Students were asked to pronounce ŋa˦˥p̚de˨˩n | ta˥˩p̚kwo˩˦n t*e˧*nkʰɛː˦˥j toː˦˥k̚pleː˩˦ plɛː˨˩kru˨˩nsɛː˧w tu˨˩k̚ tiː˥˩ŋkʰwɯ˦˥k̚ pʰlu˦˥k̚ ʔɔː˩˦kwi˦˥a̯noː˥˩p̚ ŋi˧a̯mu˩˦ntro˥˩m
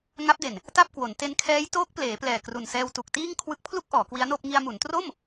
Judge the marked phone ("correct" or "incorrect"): correct